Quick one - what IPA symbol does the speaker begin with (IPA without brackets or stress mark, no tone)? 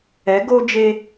ɛ